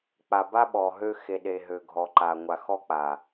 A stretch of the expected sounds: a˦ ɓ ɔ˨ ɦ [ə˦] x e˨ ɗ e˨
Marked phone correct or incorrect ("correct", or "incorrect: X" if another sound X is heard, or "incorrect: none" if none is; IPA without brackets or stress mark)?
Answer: incorrect: ø˦